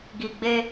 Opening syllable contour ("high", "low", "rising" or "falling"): low